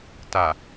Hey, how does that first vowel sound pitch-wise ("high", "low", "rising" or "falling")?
low